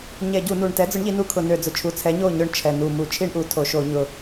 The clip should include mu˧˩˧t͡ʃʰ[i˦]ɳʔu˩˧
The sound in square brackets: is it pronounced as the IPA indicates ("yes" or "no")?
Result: yes